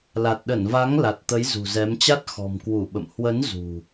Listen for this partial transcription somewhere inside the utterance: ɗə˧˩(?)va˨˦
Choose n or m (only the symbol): n